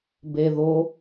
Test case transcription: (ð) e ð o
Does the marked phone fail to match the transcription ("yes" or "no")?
yes